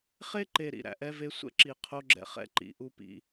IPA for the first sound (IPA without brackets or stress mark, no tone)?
χ